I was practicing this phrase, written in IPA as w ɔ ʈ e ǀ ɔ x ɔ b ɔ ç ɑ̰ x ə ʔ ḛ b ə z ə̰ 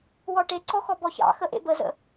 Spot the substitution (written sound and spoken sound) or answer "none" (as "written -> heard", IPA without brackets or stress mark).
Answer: none